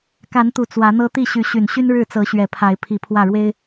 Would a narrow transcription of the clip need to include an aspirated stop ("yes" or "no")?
yes